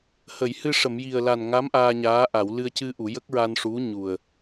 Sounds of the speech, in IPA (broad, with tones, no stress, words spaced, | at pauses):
hə˨˩˨jhɨ˧ʂə˨˩˨mji˨˩ə̯ la˨˩nŋa˧˥m ʔaː˧ɲaː˧˥ ʔa˨˩˨w lɨ˧ə̯cɨ˧ʔu˨˩˨ jə˦˥k̚ɹa˧nʂu˧˥ ɲu˨˩ə̯